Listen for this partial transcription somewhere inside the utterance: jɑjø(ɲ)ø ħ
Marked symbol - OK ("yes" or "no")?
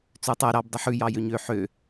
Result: yes